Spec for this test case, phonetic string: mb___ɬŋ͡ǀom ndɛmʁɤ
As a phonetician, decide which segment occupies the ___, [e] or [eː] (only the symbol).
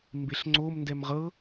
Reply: e